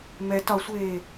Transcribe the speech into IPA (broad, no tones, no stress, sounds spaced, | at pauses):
m ɛ t ɒ sʷ eː